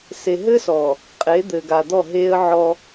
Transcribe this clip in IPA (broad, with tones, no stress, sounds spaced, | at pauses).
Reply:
s e˨ ɦ ɘː˦ s ɔː˨ | qʼ e˨˦ d̪ ɘː˨ ɡ a˨ d̪ ɔ˦˨ ɦ eː˦ ə̯ ʕ ɔ˦